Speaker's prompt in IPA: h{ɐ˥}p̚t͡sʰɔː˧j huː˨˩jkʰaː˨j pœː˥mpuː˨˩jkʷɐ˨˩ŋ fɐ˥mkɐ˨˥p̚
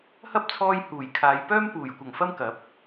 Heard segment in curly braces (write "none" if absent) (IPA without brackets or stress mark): ɐ˥